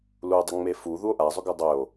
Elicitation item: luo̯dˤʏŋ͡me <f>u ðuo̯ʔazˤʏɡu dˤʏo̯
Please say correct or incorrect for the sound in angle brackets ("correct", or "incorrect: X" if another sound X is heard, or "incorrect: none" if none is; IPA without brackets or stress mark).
correct